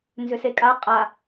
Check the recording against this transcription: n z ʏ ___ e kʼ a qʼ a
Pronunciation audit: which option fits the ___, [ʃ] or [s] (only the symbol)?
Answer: s